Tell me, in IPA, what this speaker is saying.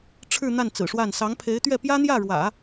ʈ͡ʂʰ ɻ̩˥˧ n̪ a˥˩ n t͡s ɹ̩˨˩ ʂ w a˥˩ n s ɑ˧˥ ŋ pʰ e˧˥ ɪ̯ t̪ ɥ ɛ˥˩ p j ä˥ n̪ j ä˥˩ ɻ w ä̰˨˩˦

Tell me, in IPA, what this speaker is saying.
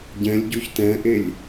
ɟ ɛ̃ lʲ ɟ o ç t ɛ̃ ʔ e lʲ

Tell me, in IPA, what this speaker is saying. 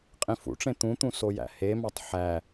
qʼ ĩ f ṵ ʈ͡ʂ ẽ t̪ ũ t̪ ũ s o j æ̰ h e m ɑ tˤ ħ æ

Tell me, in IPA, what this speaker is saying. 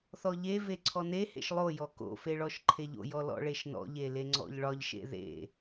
θ ɔ ʎ e v e ǀʰ ɔ n e h ḛ ʃ lˠ o j ɔ k o̰ f e ɭ ɔ ʃ ǃʰ e ʎ o̰ j ɔ l ɔ̰ ɭ e ʃ n ɔ̰ ʎ e l e ŋ͡ǀ ɔ̰ ʎ ɭ ɒ ʎ ʃ ḛ ð ḛ

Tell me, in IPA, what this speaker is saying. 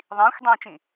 ðˤ ĩː xʷ dˤ ĩː t͡ʃ ĩ

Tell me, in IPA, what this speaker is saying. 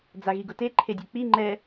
d͡z a ɣ i ɡ ʊ t e ǃʰ e dʲ u k͡p i ŋ͡ǃ ɛ

